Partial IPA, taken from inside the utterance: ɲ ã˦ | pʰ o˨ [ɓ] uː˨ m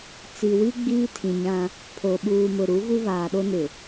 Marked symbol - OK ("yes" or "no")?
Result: yes